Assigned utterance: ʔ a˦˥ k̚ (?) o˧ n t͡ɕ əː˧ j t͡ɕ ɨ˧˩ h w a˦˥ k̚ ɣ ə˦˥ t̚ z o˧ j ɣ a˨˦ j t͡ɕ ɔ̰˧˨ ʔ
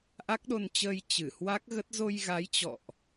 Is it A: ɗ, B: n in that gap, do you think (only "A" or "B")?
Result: A